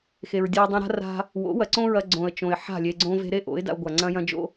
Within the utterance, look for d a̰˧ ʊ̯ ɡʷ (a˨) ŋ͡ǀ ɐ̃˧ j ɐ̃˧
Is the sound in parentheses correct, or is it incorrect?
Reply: correct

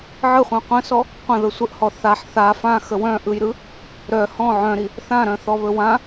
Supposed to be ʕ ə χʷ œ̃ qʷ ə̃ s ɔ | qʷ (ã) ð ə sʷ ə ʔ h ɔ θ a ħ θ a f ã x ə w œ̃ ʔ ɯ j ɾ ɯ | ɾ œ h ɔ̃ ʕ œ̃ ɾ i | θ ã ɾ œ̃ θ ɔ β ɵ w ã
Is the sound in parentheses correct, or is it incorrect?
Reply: incorrect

